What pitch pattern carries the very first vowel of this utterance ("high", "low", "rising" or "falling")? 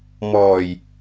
low